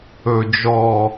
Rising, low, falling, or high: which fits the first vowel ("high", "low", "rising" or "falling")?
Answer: low